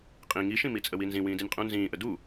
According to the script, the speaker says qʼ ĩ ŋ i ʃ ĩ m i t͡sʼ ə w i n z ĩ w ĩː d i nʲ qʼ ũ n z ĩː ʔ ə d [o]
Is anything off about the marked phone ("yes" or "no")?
yes